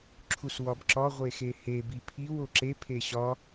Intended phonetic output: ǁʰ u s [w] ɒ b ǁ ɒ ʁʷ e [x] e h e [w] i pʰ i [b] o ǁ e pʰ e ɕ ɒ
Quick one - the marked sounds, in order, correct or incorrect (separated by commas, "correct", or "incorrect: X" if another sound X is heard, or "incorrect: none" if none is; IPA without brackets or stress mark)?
correct, correct, incorrect: b, incorrect: w